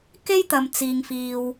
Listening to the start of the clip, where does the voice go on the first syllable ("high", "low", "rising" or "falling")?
high